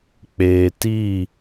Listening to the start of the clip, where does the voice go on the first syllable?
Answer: low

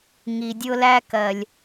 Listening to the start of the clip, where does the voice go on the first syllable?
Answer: low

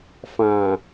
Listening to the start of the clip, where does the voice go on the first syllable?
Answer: low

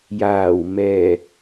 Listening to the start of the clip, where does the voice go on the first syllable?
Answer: low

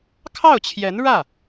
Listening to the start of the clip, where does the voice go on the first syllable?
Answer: falling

